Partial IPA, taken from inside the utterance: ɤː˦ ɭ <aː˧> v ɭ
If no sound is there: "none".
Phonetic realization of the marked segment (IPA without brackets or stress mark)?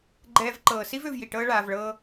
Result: aː˧